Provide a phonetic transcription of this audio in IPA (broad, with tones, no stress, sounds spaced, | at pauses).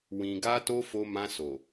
w ĩ˨ ɡ a˧ t o˧ f o˧ m ã˧ s o˨